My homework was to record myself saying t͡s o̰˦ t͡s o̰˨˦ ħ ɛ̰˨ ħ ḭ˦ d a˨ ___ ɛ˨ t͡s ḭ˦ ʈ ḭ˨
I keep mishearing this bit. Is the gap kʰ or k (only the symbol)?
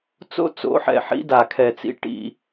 kʰ